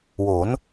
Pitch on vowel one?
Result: rising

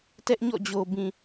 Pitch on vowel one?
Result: high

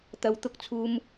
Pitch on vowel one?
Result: low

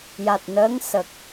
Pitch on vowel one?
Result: low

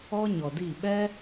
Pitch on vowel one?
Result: high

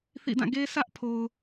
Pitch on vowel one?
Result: falling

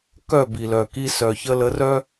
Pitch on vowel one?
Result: falling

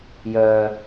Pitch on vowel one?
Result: low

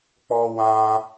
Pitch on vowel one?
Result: high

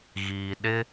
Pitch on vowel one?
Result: low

